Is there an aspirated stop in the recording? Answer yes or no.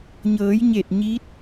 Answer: no